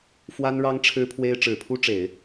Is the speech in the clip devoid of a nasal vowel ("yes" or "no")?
yes